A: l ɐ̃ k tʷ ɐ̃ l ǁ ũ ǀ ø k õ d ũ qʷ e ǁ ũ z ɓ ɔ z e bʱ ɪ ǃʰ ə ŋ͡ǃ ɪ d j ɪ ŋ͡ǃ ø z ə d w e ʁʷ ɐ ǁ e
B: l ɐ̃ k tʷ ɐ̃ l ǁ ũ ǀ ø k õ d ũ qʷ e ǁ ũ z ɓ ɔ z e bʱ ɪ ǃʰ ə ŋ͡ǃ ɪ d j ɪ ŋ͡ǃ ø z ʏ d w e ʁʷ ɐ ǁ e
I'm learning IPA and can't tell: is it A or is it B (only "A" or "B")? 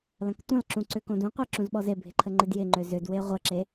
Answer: B